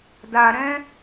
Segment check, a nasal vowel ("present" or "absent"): present